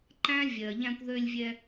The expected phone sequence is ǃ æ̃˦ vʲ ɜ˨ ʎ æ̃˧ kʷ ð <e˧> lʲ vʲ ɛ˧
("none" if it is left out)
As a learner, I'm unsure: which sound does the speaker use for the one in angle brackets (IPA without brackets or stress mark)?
ø˧